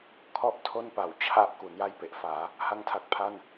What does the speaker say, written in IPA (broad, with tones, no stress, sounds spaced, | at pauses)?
kʰ ɔ˥˩ ʔ tʰ o˥˩ n p a˩˦ w t͡ɕʰ a˦˥ ʔ k u˩˦ n j a˥˩ j p e˨˩ ʔ f aː˩˦ | h a˥˩ ŋ tʰ a˦˥ k̚ pʰ a˥˩ n